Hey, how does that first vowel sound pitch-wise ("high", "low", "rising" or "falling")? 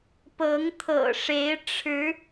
rising